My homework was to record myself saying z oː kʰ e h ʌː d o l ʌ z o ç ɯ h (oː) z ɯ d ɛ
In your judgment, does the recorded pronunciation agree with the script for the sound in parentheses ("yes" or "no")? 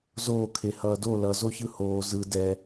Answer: yes